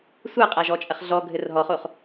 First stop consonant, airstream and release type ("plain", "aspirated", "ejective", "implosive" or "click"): ejective